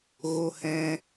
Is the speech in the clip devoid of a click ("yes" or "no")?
yes